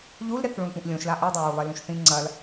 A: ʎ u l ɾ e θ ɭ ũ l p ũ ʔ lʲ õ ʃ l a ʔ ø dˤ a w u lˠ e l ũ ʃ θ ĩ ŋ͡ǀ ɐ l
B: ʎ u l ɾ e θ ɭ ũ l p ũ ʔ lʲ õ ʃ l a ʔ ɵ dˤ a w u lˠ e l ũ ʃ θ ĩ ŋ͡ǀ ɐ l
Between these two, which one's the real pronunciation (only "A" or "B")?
B